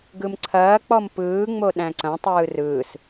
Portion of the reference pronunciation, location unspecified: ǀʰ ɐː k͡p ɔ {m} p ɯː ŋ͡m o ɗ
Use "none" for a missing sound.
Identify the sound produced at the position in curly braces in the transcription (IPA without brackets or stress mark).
m